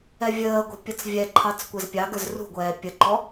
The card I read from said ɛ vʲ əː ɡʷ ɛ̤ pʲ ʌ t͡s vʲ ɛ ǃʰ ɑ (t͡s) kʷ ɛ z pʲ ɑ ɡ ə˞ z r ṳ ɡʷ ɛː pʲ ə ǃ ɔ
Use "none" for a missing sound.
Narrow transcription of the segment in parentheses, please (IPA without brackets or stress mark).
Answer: t͡s